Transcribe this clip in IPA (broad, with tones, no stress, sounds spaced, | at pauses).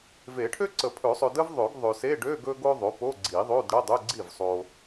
v e˨˩˦ ʈʰ ø˥ ǀ ə˨˩˦ pʰ ɵ˨˩˦ sˤ ɵ˨ d ə˥ v ðˤ ø˨˩˦ ɡ ðˤ ø˨ s e˧˥˧ ɖ ø˧˥˧ ɡ ɵ˥ ɡ o˥ ðˤ o˩˥ p o˧˥˧ ɡ͡ǀ i˨˩˦ ðˤ o˧˥˧ d ɽ ə˧˥˧ dˤ ɵ˧˥˧ ɡ͡ǀ i˥˩ v sˤ o˨